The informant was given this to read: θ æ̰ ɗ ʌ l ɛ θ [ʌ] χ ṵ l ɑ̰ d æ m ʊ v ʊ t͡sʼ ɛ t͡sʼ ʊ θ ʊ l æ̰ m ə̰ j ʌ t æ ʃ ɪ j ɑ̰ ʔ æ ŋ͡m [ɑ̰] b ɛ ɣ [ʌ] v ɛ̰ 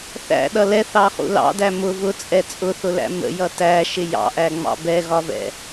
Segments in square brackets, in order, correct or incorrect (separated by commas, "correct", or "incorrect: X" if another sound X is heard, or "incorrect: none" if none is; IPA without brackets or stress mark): incorrect: ɑ, correct, incorrect: ɒ